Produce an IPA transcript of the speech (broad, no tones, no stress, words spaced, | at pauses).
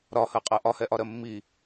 ɾɒhɜqʼɜ ʔɒhɛʔɒɾɜ mːi